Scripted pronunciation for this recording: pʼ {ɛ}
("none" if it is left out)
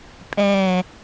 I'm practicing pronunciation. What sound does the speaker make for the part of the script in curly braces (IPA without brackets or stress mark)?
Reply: ɛ